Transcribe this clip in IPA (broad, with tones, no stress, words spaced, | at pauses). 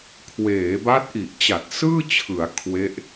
kʰweː˩˦ba˦˥t̚ʔi˨˩ʔt͡ɕa˨˩t̚ sɯː˥˩t͡ɕʰɯ˩˦a̯ kʰwe˦˥ʔ